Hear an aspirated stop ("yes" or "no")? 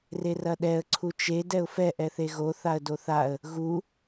yes